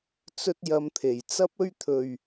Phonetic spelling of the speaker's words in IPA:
t͡sɵ˥t̚jɐ˧mt̪ʰe˨˩j t͡sɐ˥p̚ɵ˥ɥt̪ʰɵ˨ɥ

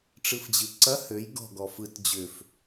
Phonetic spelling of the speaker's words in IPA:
ʈ͡ʂɯfd͡ʑɯǀɐ høj ɡɔ̤ɡɔ fɯt d͡ʑʏf

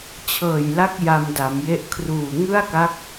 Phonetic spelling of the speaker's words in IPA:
t͡ɕʰɤː˨˩jla˦˥k̚ ja˧mda˩˦mje˦˥ʔ kʰruː˨˩ŋɯ˥˩a̯ka˦˥k̚

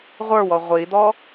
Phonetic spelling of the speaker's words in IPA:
ʁʷə˞wɔ ʁʷid̪ɔ

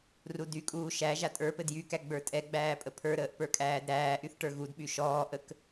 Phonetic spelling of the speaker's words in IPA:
rudykʼuː ʃæ ʒatʼə˞pɘd jykæ ɡ͡bə˞tʼɛɡ͡bæː pʼəpʰə˞ɾəːʔ pə˞kʼæːdɾæːʔyθ ʈə˞ɣudɓy ʃɔːʔək

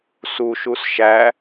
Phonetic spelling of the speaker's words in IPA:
suʃus ʃæ

